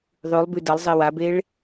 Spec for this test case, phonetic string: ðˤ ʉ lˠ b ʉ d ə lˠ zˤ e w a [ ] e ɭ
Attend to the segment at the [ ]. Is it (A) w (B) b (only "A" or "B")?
B